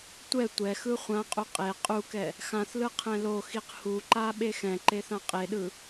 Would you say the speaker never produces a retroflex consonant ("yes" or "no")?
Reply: yes